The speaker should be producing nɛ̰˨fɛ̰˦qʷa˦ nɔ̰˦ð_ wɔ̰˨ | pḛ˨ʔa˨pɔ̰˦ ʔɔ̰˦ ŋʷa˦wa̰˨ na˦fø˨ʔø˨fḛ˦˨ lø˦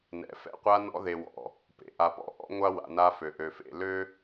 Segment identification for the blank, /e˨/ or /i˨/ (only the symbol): e˨